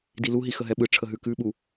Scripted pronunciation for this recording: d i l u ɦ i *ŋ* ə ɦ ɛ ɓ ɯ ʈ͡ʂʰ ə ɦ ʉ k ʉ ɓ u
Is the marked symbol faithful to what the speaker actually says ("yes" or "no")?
no